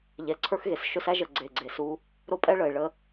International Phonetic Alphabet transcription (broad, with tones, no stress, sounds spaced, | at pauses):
ʎ ɛ˨ ǀʰ ə˞˦ x ɣ e˨ s ʃ ɵ˦ s æ˦ ʒ ə˨ ɡ͡ǀ e˨ ɡ͡ǀ e˨ s u˦ | ɾ o˦ pʼ ɛ˦ ɭ ə˨ e̯ ɭ ə˦